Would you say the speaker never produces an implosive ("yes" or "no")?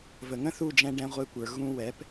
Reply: yes